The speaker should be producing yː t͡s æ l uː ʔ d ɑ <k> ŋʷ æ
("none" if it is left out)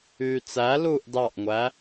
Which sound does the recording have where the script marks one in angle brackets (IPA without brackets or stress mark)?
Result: ʔ